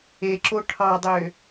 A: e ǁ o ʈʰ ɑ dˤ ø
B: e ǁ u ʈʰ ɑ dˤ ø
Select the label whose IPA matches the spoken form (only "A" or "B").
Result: A